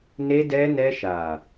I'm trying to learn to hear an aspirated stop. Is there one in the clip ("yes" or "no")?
no